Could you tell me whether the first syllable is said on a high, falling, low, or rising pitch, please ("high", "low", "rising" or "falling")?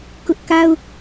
high